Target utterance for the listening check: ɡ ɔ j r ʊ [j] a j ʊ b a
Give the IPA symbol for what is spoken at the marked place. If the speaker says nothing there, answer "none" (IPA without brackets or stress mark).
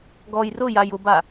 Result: j